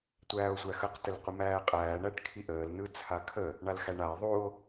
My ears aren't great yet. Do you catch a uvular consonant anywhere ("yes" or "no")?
yes